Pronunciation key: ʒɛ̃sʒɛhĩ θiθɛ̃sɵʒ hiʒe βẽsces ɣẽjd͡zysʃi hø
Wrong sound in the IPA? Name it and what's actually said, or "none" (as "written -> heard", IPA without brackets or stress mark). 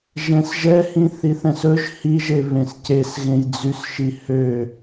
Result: none